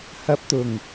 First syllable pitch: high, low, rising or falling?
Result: low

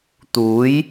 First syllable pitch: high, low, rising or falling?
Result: rising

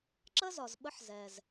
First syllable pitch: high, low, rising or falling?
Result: high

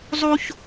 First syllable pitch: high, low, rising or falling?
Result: high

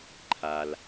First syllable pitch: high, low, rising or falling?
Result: low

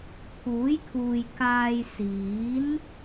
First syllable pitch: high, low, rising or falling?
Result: rising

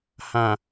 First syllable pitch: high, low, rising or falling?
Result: low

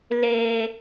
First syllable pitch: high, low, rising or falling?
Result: low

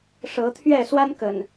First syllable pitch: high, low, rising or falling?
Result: rising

